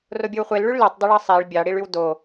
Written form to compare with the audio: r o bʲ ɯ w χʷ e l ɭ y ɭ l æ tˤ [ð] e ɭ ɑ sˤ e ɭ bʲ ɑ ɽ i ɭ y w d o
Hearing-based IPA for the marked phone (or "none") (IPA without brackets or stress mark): dˤ